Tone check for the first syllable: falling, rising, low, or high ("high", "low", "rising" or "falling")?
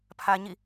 high